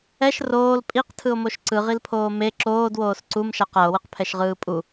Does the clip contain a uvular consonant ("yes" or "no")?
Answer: yes